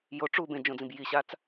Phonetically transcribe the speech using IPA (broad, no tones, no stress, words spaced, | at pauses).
jo ʈ͡ʂu bẽd͡ʒõd͡zĩb jiɕat͡s